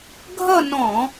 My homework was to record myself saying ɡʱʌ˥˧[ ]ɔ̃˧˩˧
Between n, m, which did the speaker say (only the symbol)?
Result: n